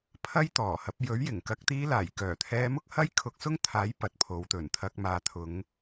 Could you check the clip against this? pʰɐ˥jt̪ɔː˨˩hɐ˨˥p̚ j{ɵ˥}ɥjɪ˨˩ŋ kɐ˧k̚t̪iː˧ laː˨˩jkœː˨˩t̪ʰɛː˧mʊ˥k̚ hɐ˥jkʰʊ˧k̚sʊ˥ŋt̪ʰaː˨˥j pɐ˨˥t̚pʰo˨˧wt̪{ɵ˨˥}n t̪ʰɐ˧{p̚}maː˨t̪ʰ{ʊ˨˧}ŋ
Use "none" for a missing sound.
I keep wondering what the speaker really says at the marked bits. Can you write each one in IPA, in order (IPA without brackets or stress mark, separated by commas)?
ɵ˨˥, ɵ˨˩, k̚, ʊ˨˧